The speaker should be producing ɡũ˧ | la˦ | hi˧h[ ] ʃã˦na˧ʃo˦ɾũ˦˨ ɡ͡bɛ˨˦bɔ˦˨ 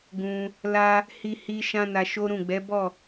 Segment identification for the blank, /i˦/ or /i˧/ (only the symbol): i˧